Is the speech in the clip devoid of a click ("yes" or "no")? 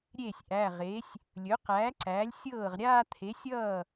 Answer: no